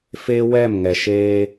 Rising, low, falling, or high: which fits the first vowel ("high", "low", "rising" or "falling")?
high